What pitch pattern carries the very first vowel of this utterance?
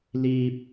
low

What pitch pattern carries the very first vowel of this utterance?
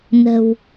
low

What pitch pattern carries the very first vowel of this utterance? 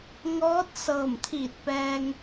rising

